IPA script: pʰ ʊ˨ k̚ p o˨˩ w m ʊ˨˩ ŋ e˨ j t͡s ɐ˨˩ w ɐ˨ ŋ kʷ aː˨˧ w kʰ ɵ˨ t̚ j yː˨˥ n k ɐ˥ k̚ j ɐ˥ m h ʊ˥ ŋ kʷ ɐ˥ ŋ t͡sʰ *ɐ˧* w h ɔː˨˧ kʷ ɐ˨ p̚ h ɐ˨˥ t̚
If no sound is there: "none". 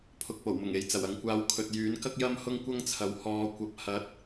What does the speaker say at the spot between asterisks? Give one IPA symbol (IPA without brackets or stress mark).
ɐ˨˥